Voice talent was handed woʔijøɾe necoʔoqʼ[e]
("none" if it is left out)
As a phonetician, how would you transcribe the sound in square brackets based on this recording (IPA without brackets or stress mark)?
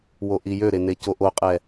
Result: ɛ